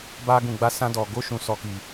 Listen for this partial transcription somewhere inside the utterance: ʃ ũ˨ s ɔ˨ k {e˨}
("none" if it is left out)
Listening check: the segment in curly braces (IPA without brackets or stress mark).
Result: i˨